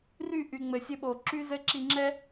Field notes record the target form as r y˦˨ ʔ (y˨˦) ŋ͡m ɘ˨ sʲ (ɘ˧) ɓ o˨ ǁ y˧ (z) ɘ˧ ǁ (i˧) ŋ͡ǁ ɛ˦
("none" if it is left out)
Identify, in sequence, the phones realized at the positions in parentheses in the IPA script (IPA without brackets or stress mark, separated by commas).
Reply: y˨, ɘ˧, z, i˧